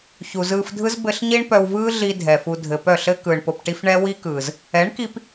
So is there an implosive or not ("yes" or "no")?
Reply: no